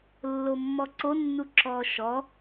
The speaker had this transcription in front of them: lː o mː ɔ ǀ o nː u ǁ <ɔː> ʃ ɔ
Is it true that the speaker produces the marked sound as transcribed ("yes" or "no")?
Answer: yes